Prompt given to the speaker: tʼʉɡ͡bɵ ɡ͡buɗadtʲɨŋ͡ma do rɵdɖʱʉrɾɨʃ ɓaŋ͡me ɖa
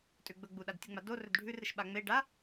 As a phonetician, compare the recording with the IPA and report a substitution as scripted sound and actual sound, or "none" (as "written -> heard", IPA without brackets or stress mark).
none